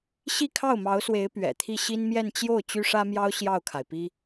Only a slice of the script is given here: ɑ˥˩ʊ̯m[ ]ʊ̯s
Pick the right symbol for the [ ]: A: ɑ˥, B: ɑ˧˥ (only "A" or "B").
B